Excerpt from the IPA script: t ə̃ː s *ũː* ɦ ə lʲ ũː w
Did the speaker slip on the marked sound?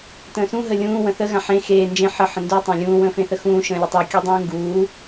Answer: yes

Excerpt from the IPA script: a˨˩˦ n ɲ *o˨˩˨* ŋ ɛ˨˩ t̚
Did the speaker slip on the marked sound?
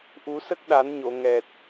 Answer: no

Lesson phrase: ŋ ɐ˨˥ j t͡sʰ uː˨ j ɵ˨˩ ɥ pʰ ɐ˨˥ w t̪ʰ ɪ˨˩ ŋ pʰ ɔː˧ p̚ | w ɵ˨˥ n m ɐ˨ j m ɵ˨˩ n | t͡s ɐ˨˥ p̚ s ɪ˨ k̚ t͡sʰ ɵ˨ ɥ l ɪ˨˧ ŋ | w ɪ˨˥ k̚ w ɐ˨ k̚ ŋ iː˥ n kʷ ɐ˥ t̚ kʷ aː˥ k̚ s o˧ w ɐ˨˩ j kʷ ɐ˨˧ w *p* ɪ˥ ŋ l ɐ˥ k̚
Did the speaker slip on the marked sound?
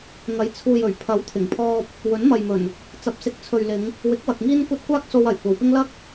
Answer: no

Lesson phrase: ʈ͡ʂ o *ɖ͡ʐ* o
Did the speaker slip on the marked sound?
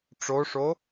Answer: yes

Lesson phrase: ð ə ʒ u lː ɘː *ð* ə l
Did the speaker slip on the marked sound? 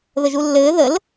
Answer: no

